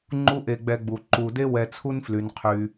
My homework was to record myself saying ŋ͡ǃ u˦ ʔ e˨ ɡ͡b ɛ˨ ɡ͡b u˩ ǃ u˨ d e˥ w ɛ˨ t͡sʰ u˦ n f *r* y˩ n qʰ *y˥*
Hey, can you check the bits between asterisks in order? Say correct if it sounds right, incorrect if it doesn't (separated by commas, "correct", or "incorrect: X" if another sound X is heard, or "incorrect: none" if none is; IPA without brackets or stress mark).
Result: incorrect: l, incorrect: y˩